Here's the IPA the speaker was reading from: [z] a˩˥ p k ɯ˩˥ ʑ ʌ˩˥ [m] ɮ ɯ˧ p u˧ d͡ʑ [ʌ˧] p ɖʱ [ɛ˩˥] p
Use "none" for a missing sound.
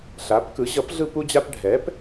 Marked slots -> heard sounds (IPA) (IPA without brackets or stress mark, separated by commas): ɬ, p, a˧, ɛː˩˥